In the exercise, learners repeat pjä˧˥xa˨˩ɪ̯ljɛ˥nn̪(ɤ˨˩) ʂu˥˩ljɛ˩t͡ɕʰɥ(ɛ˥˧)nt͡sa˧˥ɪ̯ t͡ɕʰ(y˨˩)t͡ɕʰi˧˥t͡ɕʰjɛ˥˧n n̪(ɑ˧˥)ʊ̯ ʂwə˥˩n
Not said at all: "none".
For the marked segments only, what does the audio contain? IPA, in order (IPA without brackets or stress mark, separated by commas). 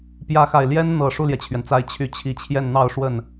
ɤ˨˩, ɛ˩, y˧˥, ɑ˥˧